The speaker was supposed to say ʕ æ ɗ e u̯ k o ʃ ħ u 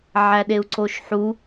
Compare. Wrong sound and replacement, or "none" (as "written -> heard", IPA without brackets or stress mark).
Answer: k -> ǀ